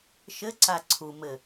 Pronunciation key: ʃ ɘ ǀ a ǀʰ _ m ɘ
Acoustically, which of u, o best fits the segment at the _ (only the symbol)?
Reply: u